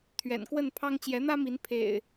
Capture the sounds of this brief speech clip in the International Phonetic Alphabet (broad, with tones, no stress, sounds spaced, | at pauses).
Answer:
t̪ʰ ɥ ɛ̰˨˩ n k w ə˥˨ n pʰ ɑ˦ ŋ t͡ɕ j ɛ˨˦ n̪ ä˦ m i˨˦ n pʰ ḛ˨˩ ɪ̯